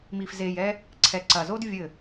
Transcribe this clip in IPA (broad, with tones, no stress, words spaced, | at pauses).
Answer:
mi˨f ze˨jɛ˧ | ǀʰɛ˨ǀɐ˨zo˦d vʲɘ˦˨